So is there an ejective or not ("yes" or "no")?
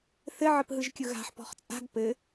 yes